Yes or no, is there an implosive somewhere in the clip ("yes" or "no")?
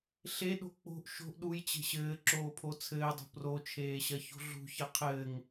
yes